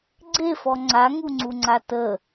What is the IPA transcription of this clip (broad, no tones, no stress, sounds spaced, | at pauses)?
ɡ͡ǀ e f ɔ ŋ͡ǀ a ŋ u ŋ͡ǀ u ŋ͡ǀ a t ə